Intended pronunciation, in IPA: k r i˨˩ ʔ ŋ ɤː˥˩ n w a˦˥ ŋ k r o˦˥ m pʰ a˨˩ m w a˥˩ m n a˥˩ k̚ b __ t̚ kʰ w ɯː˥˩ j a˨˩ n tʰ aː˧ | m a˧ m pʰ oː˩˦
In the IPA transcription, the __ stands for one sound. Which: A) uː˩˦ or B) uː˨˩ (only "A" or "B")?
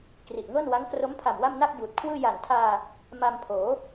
B